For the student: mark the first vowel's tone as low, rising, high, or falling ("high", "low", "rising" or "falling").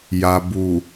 low